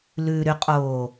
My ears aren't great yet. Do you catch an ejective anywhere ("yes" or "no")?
yes